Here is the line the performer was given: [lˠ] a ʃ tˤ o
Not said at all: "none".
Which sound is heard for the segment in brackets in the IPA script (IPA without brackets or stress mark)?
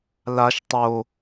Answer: l